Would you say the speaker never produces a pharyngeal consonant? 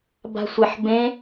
no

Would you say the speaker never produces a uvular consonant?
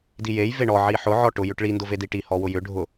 yes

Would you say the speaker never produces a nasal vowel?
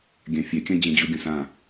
no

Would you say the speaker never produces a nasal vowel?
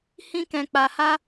no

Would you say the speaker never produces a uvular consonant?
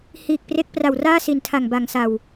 yes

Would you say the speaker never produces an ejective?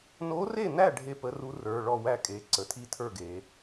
no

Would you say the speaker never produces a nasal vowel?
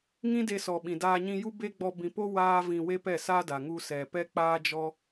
no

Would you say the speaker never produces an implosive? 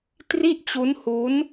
yes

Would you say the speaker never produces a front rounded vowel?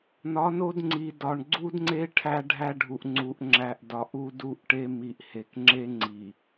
yes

